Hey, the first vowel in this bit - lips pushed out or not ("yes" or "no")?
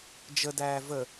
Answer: no